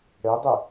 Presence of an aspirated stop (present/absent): absent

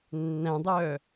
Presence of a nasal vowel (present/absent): present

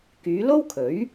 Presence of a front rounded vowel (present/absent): present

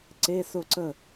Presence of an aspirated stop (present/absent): absent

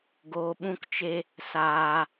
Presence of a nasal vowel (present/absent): present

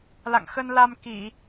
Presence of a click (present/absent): absent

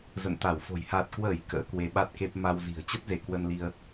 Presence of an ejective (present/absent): absent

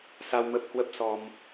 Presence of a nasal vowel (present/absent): absent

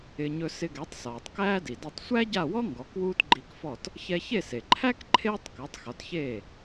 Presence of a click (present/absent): present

